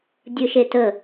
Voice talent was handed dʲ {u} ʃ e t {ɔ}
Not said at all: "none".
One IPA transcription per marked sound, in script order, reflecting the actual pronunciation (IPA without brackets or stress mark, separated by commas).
ɯ, ə